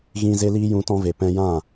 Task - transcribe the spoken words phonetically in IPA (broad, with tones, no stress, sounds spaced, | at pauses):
ɣ ĩ˧ z e˦ l iː˦ j ũ˧ t ɔ̃˧ v e˨ p ɛ̃˧ j ã˦˨